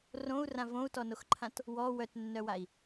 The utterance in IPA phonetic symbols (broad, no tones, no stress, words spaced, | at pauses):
rõu̯rã võu̯tɔnoxǃʰãt | wɔ wœtnːœwai̯